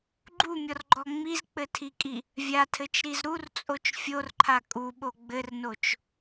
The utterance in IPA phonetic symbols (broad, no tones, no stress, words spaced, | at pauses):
ɡ͡ǃumʲɔrɡ͡ǃɔ ŋ͡mizk͡pɘtʰikʼi | vʲatʰɘt͡ʃɾiz ɾurt͡sʼot͡ʃ fʲorǃʰa kʼuɓo ɡ͡bɘrnot͡ʃ